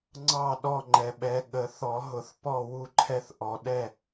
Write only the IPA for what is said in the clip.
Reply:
ŋ͡ǀɑ˥˩ ɗɔ˥˩ŋ͡ǃɛ˨ɓɛ˨˦ ɠə˨˩˦ θɔ˨˩˦ɦʊ˨˩˦θ pɔ˥˩ wu˥˩ǃʰɛ˦θ ʔɔ˨˩˦ ɗɛ˥˩

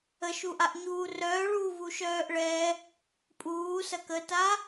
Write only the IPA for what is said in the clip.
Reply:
əʃuʔaʔ ɲuːrœːɭuː vuʃœːʔɭɛ | pʼuː sɐkəta

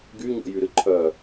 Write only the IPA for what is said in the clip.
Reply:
ɡy ɲo̰jyɾɨǃʰœ

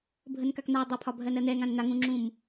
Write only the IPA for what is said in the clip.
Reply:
bʱənkakn̪a dˤɛpʰɒbʱɜn ɜn̪ɛŋãn n̪aŋũŋ͡ǁũm

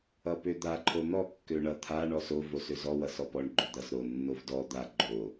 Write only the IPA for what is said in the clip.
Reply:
ʌpød̪a ǃʰon̪ɔ kːøɳʌ t̪ʰa ɳɔso vosøzɔ wʌsɔpɔɳ ɡ͡ǃød̪ʌs ɾo nːovdɔ d̪a ɡ͡ǃo

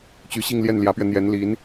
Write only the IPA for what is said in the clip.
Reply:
t͡ɕy˧˥ɕi˥˧ŋljɛ˥˩n ljä˧˥pɥɛ˧ n̪jɛ˧˥n li˧˥n

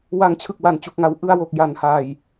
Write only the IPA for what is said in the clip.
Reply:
wa˩˦ŋt͡ɕʰɯ˨˩k̚ wa˨˩nt͡ɕu˨˩k̚ŋa˩˦w ʔɯ˧a̯wo˨˩k̚ ja˩˦nha˨˩j

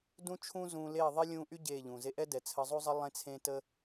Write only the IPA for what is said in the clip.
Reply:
dũ˦t͡ʃʰũː˦ zũː˧leː˦˨ ðˤe˦lʲũː˧ʔy˦ ɟeː˦˨ʎũː˨ze˦ ʔɛ˦ dɛ˨ t͡sʰə˧zˤu˦zˤə˦ lˠẽ˦t͡sʰẽ˦tə˦

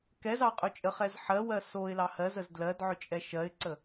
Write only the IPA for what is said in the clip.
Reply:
kɛz ɑ qʼɵt͡ʃʼəχɛz ħɜwɜ soɪ̯lɑ hɜzəz dlɜd ʕʏt͡ʃʼɛʃɜɪ̯ǀə

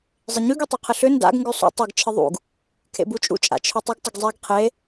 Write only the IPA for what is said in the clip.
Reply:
zˤɪɲʉɡ ytˤʉqʰɪɬʏ nda̰ɡ ŋɡʉsˤṵ tˤɪɡ t͡ʃʰɪðˤṵɡ | kʰḛbut͡ʃʼṵ t͡ʃʼa̰t͡ʃʰʉtˤɪɡ tˤɪɡzˤeɡ qʰe

